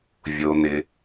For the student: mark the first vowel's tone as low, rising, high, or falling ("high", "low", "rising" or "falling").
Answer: low